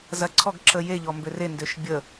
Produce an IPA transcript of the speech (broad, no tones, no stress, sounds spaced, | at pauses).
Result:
z ɐ ǀʰ ɔ ɡ ǁ ə j e ʎ ɔ m b ø r e n d ø ʃ bʲ ə